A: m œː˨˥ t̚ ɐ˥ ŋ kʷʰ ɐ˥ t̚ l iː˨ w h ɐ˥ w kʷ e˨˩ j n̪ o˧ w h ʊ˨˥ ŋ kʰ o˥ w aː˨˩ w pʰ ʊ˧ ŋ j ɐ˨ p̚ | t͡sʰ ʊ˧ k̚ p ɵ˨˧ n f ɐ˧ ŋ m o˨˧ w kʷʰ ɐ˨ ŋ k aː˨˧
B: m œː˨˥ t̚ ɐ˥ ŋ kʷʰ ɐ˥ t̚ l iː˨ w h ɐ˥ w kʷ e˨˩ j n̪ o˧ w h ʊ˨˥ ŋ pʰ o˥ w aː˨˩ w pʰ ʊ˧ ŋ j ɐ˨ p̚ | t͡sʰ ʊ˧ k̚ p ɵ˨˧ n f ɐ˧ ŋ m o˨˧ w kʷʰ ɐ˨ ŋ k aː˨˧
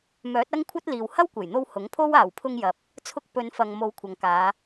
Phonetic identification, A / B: B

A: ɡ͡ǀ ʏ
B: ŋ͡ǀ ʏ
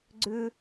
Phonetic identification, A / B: A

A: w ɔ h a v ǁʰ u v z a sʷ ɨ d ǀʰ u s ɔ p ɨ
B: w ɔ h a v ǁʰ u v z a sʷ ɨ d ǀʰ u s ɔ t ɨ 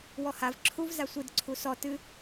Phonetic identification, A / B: B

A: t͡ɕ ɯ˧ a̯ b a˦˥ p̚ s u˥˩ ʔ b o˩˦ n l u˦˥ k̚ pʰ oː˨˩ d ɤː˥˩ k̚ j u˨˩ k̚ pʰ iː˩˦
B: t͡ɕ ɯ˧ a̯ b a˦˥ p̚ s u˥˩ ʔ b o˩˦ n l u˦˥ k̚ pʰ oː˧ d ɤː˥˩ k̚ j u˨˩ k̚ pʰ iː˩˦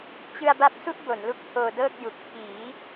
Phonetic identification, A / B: B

